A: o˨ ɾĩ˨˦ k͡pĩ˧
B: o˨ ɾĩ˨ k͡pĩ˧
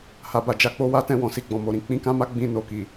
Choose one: A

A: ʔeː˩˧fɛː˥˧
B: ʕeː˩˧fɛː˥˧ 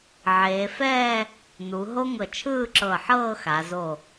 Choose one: B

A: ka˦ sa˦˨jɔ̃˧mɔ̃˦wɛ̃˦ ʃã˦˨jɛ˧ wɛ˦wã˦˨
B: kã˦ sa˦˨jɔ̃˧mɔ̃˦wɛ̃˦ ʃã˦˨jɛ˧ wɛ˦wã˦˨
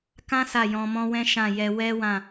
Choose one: B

